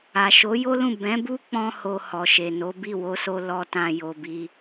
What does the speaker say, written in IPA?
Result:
a˨ ʃ o˨˦ j o˦ l ũ˦˨ b ɛ̃˨˦ b u˦ k͡p ɔ̃˧ h o˨ h ɔ˨ ʃ e˨ n o˨˦ b i˦˨ w o˨˦ s o˧ l ɔ˧ t ã˧ j o˧ b i˦

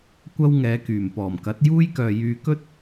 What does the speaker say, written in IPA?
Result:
kʷ ɐ˥ w ŋ ɛː˨˧ k yː˨˩ m p ɔː˨˩ m k ɐ˨˥ t̚ j uː˥ j k œː˨ j yː˧ k ɵ˥ t̚

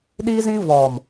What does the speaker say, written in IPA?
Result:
ɗ iː˦ z ĩ˦ v ɔ˨ m

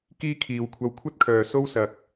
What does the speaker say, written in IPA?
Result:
k iː˥ kʰ iː˨ w kʷʰ ɐ˧ w kʷʰ ɐ˥ t̚ kʰ œː˨ s o˥ w s ɐ˨ k̚

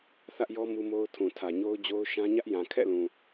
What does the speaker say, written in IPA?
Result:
θ ä˦ ʔ j ɔ˦ m u˦ m o˦ ʊ̯ tʰ ũ˨ tʰ ä˨ ɲ o˦ ʊ̯ d͡ʑ o˦ ʊ̯ ʃ ã˦ ɲ ä˦ ʔ j ã˨ kʰ ɛ̰˦˨ l ũ˨

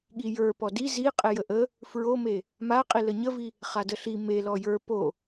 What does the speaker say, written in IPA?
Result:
ɠ i j ə˞ p ɔ d i z i qʼ e j ə ʔ ə | f ɹ o m e | m a qʼ i l ə ɲ ə v i | χ a d ə ɬ i m e l ɔ j ə˞ p o

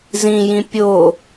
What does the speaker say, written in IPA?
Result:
z ĩ j ĩ pʲ o

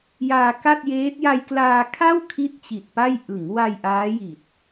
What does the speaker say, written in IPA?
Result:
j aː˧ k a˥˩ t̚ j eː˦˥ t̚ j a˧ j k l aː˧ kʰ a˥˩ w kʰ i˥˩ t̚ t͡ɕ i˨˩ t̚ p a˥˩ j ʔ ɯ˩˦ ŋ w a˧ j ʔ aː˦˥ j i˨˩ t̚

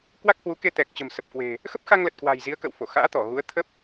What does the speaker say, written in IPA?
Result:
k w a˦˥ k̚ h w u˨˦ k e˧ t̪ ɛ˨˩ k̚ t͡ɕ ə̤˨˩ m s ə˨˩ p̚ k w e̤˨˩ | x ə˦˥ p̚ x a˧ ŋ l ə˨˩ t̚ k w a̤˨˩ j z i˨˦ ə̯ k ə̰˧˨ w f o˧˩ x a̰ː˧˥ t̪ ɔ˧˩ ɣ u˨˦ ə̯ t̪ʰ ə˦˥ p̚

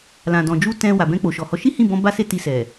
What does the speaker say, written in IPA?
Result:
l ã˨ d ɔ̃˨ d͡ʒ u˧ t ɛ̃˧ w a˨ b ɛ̃˧ k͡p o˨ ʃ ɔ˨ h ɔ˨˦ ʃ i˦ h ĩ˦˨ b ɔ̃˧ b a˦ s e˦˨ t i˧ s ɛ˨

